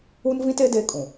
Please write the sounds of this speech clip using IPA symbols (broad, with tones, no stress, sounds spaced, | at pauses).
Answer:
u˦ n v ĩ˦ t e˦ d e˦ kʼ ũ˨